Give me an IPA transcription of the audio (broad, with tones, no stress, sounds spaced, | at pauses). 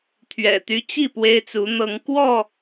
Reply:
t̪ʰ ɥ ɛ̰˨˩ t̪ y˦ t͡ɕ i˥˨ p w e˦ ɪ̯ t͡s u˨˦ n̪ ɤ˨˦ ŋ k w ɔ˥˨